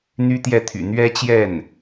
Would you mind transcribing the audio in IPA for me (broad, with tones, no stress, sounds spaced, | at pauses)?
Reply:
n̪ y˥ t̪ j ɛ˥˩ t̪ʰ y̰˨˩ n̪ ɥ ɛ˥ t͡ɕ j ɛ˥˩ n